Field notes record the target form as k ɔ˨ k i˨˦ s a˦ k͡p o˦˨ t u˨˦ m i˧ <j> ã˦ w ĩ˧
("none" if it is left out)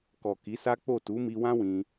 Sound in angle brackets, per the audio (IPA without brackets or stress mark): w